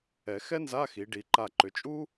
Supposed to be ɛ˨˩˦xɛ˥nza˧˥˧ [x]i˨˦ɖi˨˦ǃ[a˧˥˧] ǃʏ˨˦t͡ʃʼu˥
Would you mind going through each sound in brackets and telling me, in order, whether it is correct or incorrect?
correct, incorrect

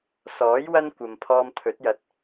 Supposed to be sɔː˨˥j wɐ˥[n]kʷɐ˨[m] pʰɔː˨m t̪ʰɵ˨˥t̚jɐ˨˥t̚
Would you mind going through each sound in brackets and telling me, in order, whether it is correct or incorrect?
correct, correct

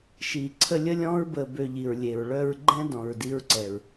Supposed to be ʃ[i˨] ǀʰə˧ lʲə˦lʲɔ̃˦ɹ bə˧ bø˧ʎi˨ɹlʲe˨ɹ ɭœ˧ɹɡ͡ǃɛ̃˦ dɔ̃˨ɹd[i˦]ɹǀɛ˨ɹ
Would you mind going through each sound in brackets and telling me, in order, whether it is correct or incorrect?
correct, incorrect

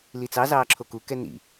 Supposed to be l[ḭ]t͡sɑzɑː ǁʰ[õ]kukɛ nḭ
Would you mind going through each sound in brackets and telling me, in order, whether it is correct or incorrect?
incorrect, incorrect

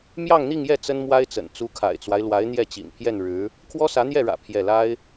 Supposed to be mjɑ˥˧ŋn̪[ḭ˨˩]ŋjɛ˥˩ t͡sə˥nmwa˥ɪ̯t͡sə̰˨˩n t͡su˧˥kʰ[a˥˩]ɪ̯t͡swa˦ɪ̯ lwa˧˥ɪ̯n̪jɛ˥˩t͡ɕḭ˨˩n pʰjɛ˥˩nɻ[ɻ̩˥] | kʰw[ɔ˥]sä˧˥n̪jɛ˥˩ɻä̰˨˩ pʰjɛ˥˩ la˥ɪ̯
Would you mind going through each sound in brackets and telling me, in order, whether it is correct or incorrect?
incorrect, incorrect, incorrect, correct

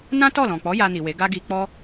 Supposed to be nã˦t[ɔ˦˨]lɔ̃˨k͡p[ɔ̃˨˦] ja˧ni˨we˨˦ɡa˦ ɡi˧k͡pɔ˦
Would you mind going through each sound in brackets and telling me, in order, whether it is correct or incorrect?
correct, incorrect

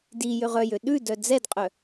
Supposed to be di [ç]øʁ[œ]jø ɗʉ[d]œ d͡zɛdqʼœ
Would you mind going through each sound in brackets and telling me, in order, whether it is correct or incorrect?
incorrect, correct, correct

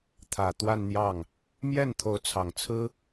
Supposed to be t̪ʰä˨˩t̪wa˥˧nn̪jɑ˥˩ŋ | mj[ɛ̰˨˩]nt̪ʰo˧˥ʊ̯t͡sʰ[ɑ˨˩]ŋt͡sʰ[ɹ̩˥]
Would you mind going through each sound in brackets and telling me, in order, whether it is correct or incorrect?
incorrect, correct, correct

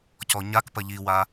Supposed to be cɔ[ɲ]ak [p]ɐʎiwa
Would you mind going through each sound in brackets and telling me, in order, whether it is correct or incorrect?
correct, correct

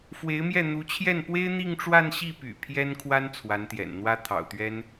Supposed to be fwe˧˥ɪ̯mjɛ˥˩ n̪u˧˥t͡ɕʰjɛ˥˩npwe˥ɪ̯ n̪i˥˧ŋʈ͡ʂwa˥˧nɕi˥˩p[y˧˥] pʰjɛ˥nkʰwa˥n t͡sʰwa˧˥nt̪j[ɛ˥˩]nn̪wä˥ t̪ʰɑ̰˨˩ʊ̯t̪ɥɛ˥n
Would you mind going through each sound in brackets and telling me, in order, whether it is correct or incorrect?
incorrect, incorrect

